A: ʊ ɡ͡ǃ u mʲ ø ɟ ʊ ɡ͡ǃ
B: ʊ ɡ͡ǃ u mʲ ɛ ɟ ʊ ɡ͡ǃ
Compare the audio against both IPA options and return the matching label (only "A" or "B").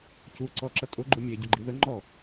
B